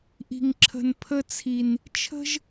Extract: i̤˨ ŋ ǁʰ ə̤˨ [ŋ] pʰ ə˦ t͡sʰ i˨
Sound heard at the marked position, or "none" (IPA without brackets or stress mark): n